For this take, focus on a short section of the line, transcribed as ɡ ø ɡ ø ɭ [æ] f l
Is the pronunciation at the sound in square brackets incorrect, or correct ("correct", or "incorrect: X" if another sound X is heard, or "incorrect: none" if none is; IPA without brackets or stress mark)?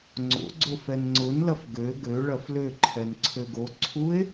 incorrect: ɐ